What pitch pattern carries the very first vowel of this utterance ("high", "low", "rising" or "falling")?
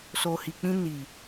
low